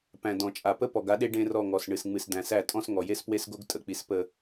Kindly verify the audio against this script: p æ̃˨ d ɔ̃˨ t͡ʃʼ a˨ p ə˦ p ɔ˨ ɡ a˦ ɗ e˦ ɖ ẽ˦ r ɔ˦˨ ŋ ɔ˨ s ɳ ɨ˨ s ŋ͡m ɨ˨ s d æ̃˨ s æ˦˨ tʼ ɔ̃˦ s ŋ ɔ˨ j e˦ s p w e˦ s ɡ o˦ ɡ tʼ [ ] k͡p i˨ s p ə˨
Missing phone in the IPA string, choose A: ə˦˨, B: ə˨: B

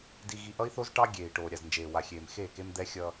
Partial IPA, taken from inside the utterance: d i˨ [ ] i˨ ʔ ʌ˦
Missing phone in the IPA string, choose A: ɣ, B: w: A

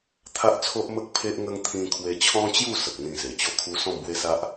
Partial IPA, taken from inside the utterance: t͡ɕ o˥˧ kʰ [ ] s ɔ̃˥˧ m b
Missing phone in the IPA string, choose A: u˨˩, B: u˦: B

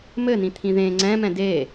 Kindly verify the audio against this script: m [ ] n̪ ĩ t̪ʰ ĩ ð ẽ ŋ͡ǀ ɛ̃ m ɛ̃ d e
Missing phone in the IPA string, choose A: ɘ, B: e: A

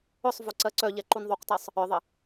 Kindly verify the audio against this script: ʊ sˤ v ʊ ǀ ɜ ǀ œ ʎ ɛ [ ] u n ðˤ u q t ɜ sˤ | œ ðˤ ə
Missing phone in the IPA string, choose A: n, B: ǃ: B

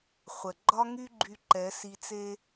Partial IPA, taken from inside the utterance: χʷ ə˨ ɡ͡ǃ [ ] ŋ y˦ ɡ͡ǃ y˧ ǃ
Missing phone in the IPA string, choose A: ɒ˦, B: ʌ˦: A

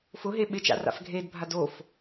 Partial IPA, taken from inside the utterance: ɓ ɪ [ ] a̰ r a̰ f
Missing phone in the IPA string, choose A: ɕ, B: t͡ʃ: B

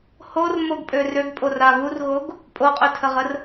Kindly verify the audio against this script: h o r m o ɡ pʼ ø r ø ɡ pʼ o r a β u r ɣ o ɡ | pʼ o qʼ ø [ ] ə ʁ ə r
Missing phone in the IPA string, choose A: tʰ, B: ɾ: A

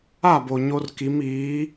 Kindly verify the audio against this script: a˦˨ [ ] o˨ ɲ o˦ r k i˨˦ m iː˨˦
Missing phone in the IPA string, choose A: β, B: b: B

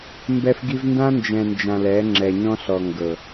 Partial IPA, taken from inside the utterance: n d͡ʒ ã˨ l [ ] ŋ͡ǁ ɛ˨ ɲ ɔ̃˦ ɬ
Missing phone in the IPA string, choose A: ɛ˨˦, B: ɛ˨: A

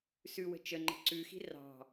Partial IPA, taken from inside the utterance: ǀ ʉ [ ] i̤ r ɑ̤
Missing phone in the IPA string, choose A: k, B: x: B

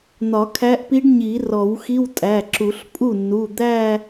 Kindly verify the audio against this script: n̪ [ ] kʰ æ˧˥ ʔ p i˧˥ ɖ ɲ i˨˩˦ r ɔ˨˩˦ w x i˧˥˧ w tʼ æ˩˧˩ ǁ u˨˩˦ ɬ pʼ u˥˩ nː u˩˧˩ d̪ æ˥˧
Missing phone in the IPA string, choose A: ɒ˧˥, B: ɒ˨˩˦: B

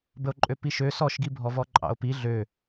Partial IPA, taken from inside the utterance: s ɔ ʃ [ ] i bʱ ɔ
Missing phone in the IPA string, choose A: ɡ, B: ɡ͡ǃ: A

